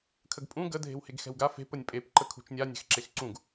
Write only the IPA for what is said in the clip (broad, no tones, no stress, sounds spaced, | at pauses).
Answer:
kʰ ə ɡ pʼ ũ ɡ ə dʱ e̤ w h e ɡ x ɛ̤ w ɡ a f e̤ p ə nʲ pʼ e p ǃ ə kʰ ṳ t͡ʃ nʲ a nʲ ɛ̤ x ǁ e x ǀ ũ ɡ